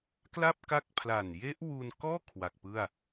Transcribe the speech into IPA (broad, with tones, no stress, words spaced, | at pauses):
kla˥˩p̚ ka˦˥k̚pʰla˨˩n je˦˥ʔwu˧nkɔː˥˩ kʰwa˨˩k̚pɯ˥˩a̯